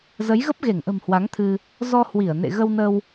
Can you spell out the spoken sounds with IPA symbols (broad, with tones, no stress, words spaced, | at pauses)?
zə˨˦jɣə˦˥p̚ɣe˧˩ŋʔə̤˨˩m hwa˨˦ŋt̪ʰɨ˧ | zɔ˧hwi˧˩ə̯ nḛ˧˨ɣə˧wnə˧w